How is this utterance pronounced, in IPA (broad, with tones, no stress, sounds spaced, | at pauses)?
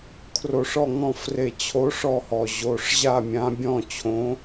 kʰ r o˧˩˧ ʂ ɔ˥˨ ŋ ɔ̃˥˨ f r e˧˩ t͡ɕʰ o˨˦ ʂ ɔ˧˩ h ɔ˩ ʑ o˩˧˩ ʂ ʑ a˥˨ mʲ ã˨˦ bʲ ɔ̃˥˨ t͡ɕʰ õ˨˦